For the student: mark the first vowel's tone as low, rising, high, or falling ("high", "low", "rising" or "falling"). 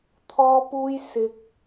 high